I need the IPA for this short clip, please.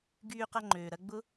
ɡ yː˧ q ɐ˧ ŋ͡ǃ øː˨ ɾ ɐ˧ ɡ͡b ʊ˦

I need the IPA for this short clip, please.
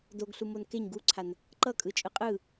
d o ɡ ɬ u m o n k e ɲ ɡ u ǀʰ a n | ǃ ʌ kʼ ɯ t͡ʃʼ ɯ qʼ ɯ

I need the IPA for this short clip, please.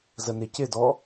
z ə n ɪ c ɪ d ɔ

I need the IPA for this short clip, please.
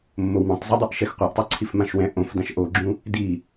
mː o w m ɛ̃ tˤ z i dˤ o ʔ ʃ ɛ x qʷ a ʔ tˤ ɛ ǀʰ i f m ã ʃ w ɛ̃ ʔ õ f d ã ʃ ʔ o ɡ͡ǁ ũ | d i

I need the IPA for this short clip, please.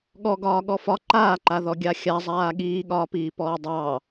ɠ ɔ ɡ ɒː ɠ ɔ f ɒ ǃ aː ǃ a ð ɔ ɡʲ a xʲ a zˤ aː ɠ iː ɠ ɒː p iː p ɔː dˤ ɑː

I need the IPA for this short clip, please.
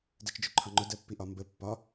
d ɜ t͡ʃ d͡ʒ ʊ ǃʰ ɒ ŋ͡ǃ ʊ d ɜ pː i ʔ ɒ m b ə pː ɒ

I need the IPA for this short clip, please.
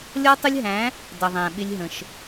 lʲ ɔ˦ tˤ ʊ˦ lʲ ɦ æ̃˨˦ | d ʌ˨ ðˤ æ̃˨ ɓ ɪ˦ lʲ ɦ ə̃˨ ʃ

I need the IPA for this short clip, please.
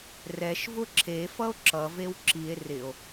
r ɛ ʃ v ʊ ǁʰ e f ʌ o̯ ǁ ʌ v e w ǁ i e̯ r ɪ o̯

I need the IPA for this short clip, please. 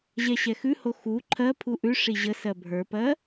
ʑ ɛ ɕ ɛ x ʉ h o x u ǃʰ ɜ pʰ u ʔ ʉ ʂ i ʑ ə s ɜ bʱ ə˞ p ɜ

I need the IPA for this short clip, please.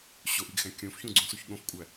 ɕ o ʔ i ɡ x æ̃ kʲ õ f ç ũ ɡ͡ǀ ũ s u ç ɠ õ f kʷʼ æ

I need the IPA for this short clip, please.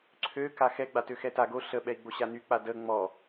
ǀʰ ø k a x ɛ ɡ͡b a t ø x ɛ t a ɡ o ɬ ə ɓ ɛ i̯ ɡ͡b o ɕ a n y k͡p a d ə ŋ͡m ɔ

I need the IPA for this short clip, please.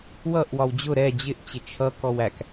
w ʌ ʔ w ɒ w d͡ʑ ʊ ɾ ɛ d͡ʑ ɪ ʔ t͡ɕ ɪ t͡ʃʰ ʌ k ɔ w æ k

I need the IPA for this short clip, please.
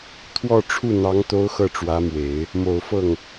t̪ʰ w ɔ˥˧ ʈ͡ʂʰ u˥˩ n̪ ɑ˧˥ ŋ t̪ o˧˥ ʊ̯ x ɤ˥˩ ʈ͡ʂ w ä˧˥ m w e˨˩˦ ɪ̯ | m o˨˩ ʊ̯ f ɤ˥˩ ŋ

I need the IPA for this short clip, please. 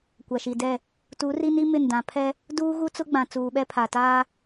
kʷ a˨ ʃ i˨ d ɛ˦˨ | t u˨˦ r i˦ n i˦ m ɪ˦˨ n d ã˨ pʰ ɛ˦ | d uː˦ ɣ u˦ t͡s ʊ˦ ɡ͡b ã˨ t͡s uː˨ ɓ ɛ˦ pʰ a˨ t aː˦

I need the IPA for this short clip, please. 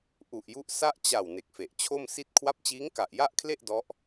ʔ u˨˩ ʔ j u˦˥ ʔ s a˥˩ ʔ t͡ɕ a˨˩ w n e˨˩ k̚ f e˨˩ ʔ t͡ɕʰ o˥˩ m s i˥˩ t̚ kʰ w a˦˥ p̚ t͡ɕ iː˦˥ ŋ k a˨˩ ʔ j a˥˩ ʔ kʰ l e˥˩ ʔ d ɔ˦˥ ʔ

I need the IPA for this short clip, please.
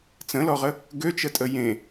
t͡s ə̃ l ɔ ʁ ə | ɡ ø t͡ʃ ə tʼ ə j ẽ

